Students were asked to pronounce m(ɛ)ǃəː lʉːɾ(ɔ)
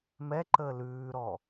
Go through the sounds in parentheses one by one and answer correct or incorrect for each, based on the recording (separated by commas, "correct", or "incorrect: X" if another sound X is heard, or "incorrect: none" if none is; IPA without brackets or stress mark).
correct, correct